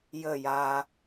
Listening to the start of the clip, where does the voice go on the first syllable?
falling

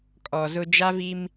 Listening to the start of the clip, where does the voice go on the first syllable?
low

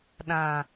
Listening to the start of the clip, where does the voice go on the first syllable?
low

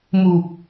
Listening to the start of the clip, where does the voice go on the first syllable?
low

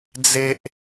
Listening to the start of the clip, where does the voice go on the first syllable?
high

